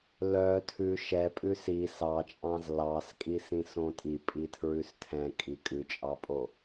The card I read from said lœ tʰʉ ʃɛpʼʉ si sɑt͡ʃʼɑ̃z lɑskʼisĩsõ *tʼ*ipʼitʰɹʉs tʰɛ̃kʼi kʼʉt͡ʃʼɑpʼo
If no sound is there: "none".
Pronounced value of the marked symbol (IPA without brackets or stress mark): tʼ